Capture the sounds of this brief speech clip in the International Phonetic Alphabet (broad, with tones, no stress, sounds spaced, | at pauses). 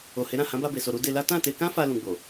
o˨ h e˨˦ ɾ ã˦˨ h ã˨˦ b a˧ b e˨ s o˨ ɾ u˧ d e˧ l a˦ t ã˦˨ t e˧ k ã˦ f a˧ l ũ˧ ɡ͡b o˨